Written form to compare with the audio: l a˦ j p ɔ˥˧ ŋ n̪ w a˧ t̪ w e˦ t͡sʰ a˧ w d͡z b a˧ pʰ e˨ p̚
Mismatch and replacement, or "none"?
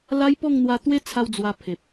b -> w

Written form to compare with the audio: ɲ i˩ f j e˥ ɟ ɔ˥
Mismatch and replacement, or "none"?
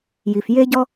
ɲ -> j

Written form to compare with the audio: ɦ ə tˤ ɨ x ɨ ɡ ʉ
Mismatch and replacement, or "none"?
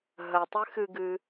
ʉ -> ɨ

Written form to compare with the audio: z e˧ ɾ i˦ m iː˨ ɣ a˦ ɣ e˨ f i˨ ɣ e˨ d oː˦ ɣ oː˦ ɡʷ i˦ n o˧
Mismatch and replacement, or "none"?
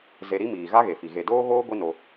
none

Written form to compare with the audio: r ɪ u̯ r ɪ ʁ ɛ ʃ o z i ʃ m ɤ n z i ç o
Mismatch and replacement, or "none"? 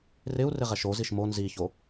ɤ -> o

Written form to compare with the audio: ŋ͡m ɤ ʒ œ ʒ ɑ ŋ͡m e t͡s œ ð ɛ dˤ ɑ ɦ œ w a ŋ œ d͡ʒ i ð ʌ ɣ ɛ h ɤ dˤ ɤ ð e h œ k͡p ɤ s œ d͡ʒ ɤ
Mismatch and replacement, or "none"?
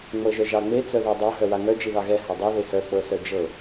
ʌ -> ɑ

